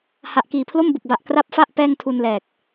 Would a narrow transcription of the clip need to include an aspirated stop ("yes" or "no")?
yes